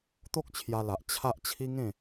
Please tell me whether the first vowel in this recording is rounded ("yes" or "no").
yes